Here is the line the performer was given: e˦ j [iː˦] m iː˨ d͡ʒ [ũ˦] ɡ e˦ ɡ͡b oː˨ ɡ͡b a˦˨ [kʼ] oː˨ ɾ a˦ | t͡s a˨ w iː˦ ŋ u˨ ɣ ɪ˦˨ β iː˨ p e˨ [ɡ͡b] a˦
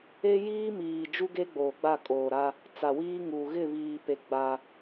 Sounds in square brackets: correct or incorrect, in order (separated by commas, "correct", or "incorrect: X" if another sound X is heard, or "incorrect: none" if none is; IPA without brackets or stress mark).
correct, incorrect: u˦, correct, correct